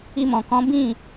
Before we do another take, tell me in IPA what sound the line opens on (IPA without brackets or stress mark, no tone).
i